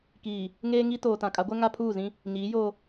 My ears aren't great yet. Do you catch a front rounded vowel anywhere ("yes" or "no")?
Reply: no